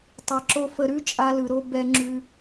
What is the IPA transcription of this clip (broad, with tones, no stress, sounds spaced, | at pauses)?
tˤ e˨ ǁ o˧ f ə˧ ɾ ʉ˦ t͡ʃʼ a˧ l ɯ˨ ɾ o˧ b ɛ˧ ŋ͡ǁ ʉ˧